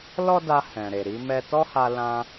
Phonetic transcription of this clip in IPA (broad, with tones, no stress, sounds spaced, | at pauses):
l ɔ˦ d a˧ h ɛ̃˨ ɾ e˨ ɾ i˧ m ɛ˦ t ɔ˦ h a˧ l ã˧